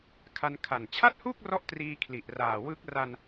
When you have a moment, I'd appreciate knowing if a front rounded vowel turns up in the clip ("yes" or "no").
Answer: no